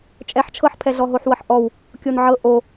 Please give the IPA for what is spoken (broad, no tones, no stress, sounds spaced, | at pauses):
t͡ʃʼ ɛ ħ t͡ʃʰ ɤ ħ pʰ ɛ ɮ ɔ ɦ o ħ w ɤ ħ ʔ ɔ w | kʲ o n ʕ ɤ ʔ o